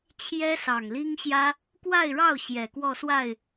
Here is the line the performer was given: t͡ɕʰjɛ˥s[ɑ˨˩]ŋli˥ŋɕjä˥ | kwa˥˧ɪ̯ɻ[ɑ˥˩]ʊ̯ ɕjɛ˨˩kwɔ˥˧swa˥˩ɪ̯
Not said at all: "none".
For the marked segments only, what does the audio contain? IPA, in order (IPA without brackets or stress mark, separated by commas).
ɑ˨˩, ɑ˥˩